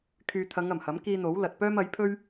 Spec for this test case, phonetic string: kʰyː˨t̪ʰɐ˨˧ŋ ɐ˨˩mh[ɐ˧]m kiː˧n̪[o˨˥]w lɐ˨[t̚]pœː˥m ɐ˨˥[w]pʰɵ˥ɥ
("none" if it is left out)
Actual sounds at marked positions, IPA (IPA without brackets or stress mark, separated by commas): ɐ˨˥, o˨˥, t̚, j